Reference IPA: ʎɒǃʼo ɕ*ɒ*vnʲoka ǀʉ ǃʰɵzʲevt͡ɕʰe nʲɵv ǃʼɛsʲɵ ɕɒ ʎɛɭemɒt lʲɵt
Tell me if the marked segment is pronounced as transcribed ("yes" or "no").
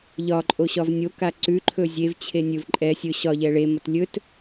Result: yes